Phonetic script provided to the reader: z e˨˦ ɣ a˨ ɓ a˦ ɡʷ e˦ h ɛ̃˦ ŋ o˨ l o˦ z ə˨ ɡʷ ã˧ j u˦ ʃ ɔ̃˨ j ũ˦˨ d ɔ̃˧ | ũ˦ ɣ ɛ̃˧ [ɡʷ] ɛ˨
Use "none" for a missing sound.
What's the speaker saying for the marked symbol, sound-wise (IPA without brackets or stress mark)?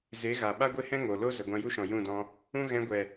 ɡʷ